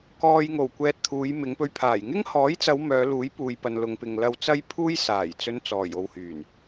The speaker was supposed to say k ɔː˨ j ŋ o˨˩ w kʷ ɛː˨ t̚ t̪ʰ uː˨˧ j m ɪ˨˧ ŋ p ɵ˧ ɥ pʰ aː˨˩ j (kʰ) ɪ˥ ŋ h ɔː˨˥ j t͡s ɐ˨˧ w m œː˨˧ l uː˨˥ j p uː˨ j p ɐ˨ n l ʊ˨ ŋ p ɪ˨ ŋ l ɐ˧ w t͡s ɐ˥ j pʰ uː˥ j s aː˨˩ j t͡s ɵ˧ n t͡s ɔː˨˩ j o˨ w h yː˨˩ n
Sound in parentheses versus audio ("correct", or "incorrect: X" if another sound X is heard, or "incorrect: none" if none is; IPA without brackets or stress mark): incorrect: ŋ